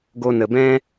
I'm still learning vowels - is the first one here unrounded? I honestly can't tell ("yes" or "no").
no